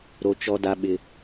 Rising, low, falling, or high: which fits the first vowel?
high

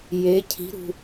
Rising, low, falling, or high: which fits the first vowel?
rising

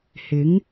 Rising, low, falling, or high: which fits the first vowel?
rising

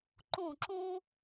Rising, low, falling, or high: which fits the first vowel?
falling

